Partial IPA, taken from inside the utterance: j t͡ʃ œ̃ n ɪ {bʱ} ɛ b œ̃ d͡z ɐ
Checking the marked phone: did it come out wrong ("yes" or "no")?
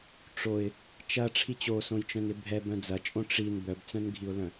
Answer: no